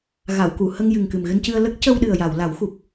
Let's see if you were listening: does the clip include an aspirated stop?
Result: no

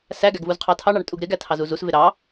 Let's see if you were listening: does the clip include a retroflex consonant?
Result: yes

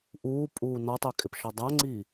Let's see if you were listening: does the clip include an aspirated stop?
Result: no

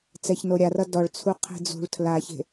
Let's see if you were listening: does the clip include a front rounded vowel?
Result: no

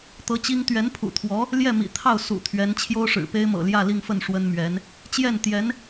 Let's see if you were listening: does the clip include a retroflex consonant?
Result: yes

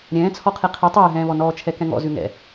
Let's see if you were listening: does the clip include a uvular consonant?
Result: yes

